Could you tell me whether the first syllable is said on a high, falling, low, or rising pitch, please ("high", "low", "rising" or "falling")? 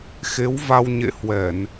rising